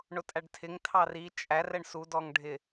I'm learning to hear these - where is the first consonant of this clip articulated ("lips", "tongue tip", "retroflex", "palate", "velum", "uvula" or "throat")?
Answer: retroflex